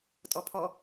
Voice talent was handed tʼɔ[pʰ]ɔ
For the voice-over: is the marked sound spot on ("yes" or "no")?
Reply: yes